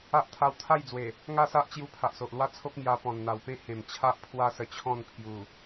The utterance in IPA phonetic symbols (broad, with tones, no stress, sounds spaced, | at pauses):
a˦ ʔ t̪ʰ a˧ w t̪ʰ a˥˧ j d͡z w e˨˩ | ŋ a˥˧ s a˦ ʔ t͡ɕ j u˧ pʰ a˨ ʔ s o˨ ʔ l w a˦ t͡sʰ o˦ k̚ m j a˧ p ɔ̃˨˩ n n̪ a˨˩ w p ẽ˥˧ h ẽ˨˩ m t͡ɕʰ a˦ ʔ pʰ w a˦ s ə˧ t͡ɕʰ ɔ̃˥˧ n pʰ j u˨˩